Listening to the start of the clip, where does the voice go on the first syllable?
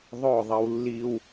falling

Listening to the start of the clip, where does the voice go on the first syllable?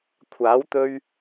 rising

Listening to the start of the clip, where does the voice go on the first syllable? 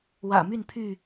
low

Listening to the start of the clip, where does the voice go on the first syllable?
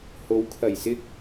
rising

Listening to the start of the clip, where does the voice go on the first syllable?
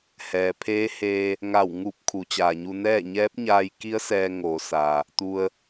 low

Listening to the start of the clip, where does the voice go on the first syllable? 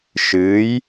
rising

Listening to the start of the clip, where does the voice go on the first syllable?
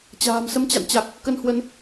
low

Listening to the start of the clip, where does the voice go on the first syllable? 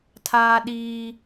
high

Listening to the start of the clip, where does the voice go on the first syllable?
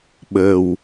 low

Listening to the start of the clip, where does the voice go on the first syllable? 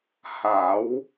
rising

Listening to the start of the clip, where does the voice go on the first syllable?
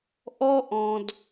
high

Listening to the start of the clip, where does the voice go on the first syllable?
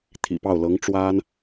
low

